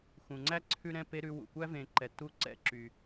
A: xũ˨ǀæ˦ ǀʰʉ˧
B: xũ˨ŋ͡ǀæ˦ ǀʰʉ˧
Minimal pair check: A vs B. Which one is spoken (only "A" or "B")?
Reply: B